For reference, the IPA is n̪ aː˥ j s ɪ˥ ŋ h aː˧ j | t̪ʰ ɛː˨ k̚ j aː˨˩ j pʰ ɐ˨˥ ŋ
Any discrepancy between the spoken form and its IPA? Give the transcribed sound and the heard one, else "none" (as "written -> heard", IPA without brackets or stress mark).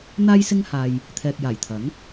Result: pʰ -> t̪ʰ